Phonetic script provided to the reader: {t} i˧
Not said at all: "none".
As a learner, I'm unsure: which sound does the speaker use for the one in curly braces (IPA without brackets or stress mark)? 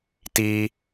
t